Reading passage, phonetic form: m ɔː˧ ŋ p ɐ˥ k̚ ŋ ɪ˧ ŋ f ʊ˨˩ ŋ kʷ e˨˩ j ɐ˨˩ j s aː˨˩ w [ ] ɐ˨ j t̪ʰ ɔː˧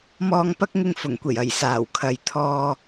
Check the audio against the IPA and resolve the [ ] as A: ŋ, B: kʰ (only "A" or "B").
B